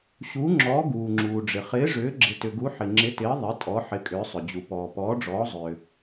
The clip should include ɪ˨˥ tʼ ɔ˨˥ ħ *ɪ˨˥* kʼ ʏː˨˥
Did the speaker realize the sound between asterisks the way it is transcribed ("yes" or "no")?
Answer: yes